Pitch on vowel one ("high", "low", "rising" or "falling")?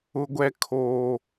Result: high